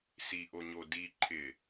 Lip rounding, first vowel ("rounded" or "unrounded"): unrounded